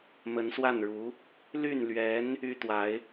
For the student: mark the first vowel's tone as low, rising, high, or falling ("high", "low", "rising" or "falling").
rising